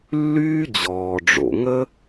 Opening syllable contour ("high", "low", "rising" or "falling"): high